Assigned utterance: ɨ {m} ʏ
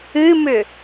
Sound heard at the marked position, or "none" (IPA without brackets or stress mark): m